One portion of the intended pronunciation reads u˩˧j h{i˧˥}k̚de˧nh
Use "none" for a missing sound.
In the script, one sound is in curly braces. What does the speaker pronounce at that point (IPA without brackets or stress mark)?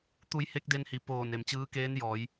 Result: e˧˥